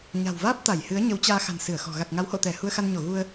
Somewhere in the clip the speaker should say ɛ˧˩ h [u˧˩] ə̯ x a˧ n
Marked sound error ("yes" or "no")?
yes